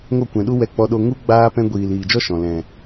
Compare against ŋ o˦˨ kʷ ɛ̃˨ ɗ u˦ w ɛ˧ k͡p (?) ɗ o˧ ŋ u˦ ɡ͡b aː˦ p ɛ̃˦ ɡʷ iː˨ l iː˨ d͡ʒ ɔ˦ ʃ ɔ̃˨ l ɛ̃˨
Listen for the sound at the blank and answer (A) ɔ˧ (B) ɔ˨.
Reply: A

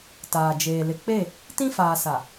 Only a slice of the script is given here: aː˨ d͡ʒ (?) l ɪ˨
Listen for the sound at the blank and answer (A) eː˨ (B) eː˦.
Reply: A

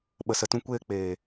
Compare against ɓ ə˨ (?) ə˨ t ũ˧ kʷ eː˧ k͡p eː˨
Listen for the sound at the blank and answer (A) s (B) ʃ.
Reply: A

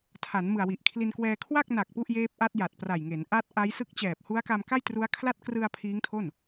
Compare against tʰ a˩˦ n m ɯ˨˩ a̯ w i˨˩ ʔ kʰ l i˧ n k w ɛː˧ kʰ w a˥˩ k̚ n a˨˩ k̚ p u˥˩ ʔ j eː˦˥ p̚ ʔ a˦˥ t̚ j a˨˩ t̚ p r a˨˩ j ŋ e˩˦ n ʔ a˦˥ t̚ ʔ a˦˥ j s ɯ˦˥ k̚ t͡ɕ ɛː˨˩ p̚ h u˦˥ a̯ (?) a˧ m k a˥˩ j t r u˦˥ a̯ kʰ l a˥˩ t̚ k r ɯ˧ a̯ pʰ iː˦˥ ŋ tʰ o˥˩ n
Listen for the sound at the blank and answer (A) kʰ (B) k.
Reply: B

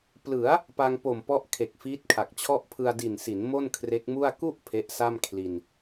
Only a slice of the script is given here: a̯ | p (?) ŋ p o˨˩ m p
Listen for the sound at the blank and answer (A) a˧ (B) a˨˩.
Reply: A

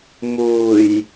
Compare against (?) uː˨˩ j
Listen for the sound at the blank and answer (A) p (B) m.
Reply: B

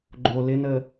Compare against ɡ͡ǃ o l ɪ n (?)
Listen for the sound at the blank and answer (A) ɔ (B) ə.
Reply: B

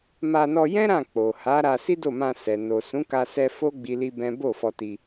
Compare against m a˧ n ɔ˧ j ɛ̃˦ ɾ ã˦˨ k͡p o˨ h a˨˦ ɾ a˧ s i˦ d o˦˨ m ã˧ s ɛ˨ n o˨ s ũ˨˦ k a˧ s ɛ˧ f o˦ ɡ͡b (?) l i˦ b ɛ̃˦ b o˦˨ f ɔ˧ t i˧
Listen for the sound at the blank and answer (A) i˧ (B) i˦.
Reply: B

